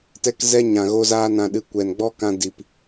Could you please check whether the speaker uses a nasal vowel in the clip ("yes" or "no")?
yes